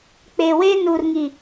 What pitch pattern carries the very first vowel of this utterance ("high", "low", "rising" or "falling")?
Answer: low